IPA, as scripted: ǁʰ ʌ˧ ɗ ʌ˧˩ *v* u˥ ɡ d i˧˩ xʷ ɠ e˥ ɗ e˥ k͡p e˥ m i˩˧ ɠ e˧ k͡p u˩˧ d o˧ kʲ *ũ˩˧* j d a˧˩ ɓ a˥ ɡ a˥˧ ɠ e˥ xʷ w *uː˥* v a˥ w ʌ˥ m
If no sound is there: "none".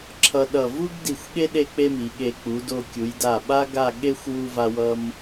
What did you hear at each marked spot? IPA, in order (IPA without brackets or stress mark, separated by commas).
v, u˩˧, u˥